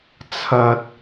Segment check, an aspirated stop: present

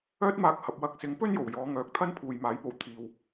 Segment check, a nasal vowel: absent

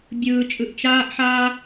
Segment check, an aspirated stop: absent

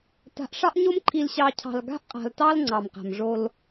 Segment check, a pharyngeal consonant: absent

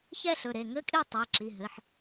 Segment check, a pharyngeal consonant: present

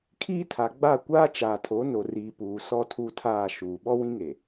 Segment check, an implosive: present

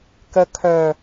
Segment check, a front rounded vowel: present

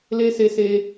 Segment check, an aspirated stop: absent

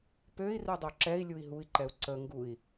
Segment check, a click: present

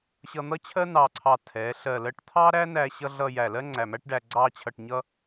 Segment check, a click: present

